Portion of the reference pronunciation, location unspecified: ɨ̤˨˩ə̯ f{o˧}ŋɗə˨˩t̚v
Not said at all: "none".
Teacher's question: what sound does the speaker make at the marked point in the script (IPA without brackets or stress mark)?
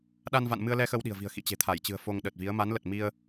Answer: o˧